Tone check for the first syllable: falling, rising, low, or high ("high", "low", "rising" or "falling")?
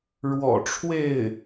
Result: low